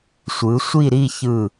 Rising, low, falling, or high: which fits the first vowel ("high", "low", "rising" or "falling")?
rising